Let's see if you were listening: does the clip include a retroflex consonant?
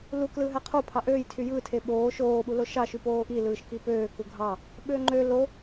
no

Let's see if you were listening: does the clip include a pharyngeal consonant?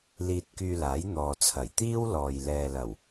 no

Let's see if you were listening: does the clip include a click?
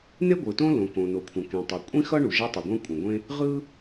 no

